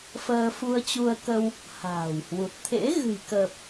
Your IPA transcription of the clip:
fəː˧fu˧ə̯t͡ɕu˧ə̯kə˧w | ha̤ː˨˩whwu˨˩t̚ t̪ʰḛ˧˥ ɣɨ̤˨˩jkəː˨˩p̚

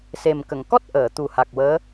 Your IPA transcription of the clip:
se˨˩mkə˨˩˨ŋ kɔ˦˥t̚ ʔəː˨˩˨t̪u˨˩ha˨˩k̚wəː˧˥

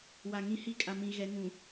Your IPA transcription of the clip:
wa˨ŋĩ˦ hi˦˨kʼa˨mĩ˨ ɣɛ˨˦ŋũ˨

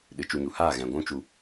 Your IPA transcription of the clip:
ɗɨ˨t͡ʃu˧ɲu˨ haː˦˨ɣɛ̃˨ ɡʷũ˦ t͡ʃu˧

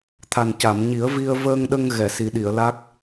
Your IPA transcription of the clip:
t̪ʰa˨˩nca˨˩˨m ɲi˨˩˦ə̯vi˧ə̯ vəː˧ŋɗə˧ŋ ɣɛ˨˩˨si˨˩˦ɗi˨˩˨ə̯ la˦˥k̚

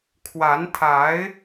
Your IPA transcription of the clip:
kʰwa˧˥nt̪ʰa˧˥ɪ̯

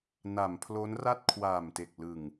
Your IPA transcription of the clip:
na˩˦mpʰlo˦˥n ra˥˩t̚kʰwaː˨˩mte˨˩k̚ lɯ˨˩ŋ

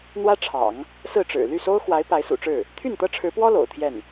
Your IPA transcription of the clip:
n̪wä˥ʈ͡ʂʰɑ̰˨˩˦ŋ | sɹ̩˥˩ʈ͡ʂɻ̩˨˩ ly˥˩so˥ʊ̯xwa˧˥ɪ̯ pa˧˥ɪ̯sṵ˨˩ʈ͡ʂɻ̩˥˩ | t̪ʰy˥˩nt̪ɤ˥ʈ͡ʂʰɻ̩˧˥pwɔ˥ lo̰˨˩ʊ̯t̪ʰjɛ˥˩n

